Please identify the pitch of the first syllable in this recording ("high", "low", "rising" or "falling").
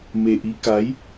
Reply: low